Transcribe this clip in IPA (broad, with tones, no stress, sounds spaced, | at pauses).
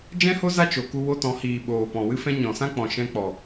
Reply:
d͡ʒ ɛ̃˦ h o˦ z a˦ t͡ʃ o˨ k u˧ w o˧ t ɔ̃˨˦ h iː˨ ɓ oː˨ p ɔ̃˨ w ɨ˧ f ɛ̃˧ ɲ ɔ̃˨ s ã˦ k͡p ɔ̃˨ ʃ ɛ̃˧ k͡p ɔ˨